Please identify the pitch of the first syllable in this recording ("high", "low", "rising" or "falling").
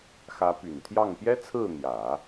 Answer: rising